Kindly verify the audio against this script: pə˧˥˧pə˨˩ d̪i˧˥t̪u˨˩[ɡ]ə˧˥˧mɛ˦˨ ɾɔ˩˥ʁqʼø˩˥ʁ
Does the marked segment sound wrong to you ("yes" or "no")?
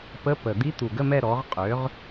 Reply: no